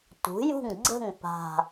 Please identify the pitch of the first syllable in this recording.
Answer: rising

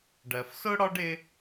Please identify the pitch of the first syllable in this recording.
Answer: low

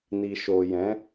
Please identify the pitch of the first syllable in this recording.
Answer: low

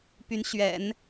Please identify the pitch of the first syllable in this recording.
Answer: rising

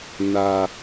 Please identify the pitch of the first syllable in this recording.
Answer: high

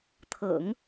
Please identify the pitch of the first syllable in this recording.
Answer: low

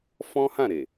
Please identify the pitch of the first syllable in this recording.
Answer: high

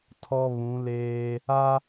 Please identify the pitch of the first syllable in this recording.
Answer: high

